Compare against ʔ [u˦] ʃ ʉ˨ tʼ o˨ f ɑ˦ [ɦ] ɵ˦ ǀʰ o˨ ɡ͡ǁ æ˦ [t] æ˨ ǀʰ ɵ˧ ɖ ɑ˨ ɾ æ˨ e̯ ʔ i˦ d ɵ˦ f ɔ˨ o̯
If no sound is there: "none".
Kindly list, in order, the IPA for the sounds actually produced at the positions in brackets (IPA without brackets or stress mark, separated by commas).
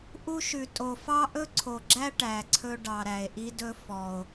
u˦, ʔ, ʈ